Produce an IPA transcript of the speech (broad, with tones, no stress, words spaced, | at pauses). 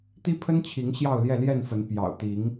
t̪i˦pʰə˦nt͡ɕʰi˨˦ŋ ɕjɑ˥˨ʊ̯ljɛ˥˨ljɛ˥˨nfə˨˦n pjɑ̰˨˩ʊ̯t̪i˨˦ŋ